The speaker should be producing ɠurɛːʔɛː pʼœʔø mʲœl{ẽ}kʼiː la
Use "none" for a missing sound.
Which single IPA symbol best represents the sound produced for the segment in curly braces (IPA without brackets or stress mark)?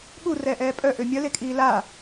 e